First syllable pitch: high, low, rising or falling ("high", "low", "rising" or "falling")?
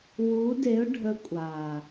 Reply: rising